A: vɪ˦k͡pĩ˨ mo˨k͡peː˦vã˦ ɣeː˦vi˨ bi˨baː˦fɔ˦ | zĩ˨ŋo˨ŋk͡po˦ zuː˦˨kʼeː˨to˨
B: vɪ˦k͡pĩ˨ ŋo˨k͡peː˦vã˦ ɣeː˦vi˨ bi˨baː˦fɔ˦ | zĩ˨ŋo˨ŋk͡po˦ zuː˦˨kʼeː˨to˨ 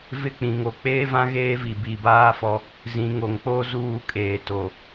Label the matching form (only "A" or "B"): B